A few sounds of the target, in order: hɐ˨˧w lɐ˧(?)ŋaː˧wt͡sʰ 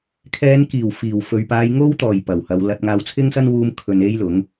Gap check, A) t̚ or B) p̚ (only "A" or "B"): A